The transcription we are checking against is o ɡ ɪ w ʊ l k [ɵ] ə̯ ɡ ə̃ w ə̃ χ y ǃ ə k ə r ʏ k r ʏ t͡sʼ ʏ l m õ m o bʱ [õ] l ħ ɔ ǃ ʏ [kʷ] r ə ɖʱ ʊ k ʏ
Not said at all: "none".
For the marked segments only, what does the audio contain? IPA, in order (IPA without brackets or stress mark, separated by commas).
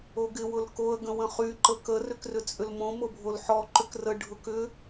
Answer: o, o, k